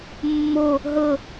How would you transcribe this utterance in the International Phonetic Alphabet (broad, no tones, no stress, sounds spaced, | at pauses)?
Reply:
mː o | ɦ ɤ